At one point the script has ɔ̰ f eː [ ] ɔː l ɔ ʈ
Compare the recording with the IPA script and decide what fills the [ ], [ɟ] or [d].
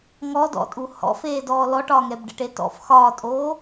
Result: d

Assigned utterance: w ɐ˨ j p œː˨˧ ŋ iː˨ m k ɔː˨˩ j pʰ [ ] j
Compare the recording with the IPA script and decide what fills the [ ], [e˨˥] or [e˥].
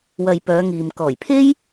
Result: e˥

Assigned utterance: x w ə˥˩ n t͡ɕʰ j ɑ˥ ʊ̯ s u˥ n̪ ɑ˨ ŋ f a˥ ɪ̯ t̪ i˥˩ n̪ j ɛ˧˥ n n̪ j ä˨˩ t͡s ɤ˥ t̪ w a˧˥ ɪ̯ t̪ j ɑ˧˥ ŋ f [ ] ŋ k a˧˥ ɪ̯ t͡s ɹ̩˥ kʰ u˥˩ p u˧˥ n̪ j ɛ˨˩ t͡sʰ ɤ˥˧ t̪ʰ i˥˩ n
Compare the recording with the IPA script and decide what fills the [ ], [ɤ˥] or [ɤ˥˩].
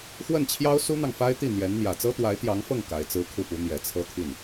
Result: ɤ˥˩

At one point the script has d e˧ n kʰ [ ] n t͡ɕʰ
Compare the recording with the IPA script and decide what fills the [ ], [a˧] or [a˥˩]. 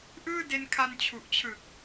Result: a˧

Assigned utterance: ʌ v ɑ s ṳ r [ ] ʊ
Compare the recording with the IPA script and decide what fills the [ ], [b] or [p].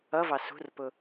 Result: p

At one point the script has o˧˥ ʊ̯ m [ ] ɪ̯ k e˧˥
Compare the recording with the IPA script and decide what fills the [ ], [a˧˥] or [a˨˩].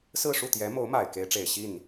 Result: a˨˩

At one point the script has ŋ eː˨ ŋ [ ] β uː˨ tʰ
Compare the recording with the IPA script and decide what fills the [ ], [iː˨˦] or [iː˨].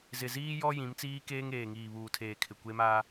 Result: iː˨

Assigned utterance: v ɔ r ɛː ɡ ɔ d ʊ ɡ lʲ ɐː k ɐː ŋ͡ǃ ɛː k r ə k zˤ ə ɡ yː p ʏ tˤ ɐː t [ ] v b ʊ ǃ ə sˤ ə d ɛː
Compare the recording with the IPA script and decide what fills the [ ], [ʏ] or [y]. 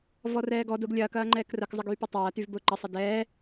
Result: y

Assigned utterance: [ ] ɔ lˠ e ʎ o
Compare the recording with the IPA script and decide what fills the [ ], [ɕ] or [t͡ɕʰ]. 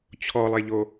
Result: t͡ɕʰ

